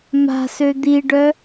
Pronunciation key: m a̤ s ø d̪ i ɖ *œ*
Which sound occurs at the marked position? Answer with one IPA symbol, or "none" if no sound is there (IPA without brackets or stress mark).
œ